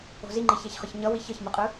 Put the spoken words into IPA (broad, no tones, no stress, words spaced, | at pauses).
o̤ziŋ͡ǃi çɛçχɯçɲʌwi çʌçmɯqʼɯ